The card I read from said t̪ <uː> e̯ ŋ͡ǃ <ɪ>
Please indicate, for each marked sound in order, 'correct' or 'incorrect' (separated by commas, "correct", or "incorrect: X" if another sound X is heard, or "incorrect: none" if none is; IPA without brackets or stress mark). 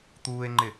correct, correct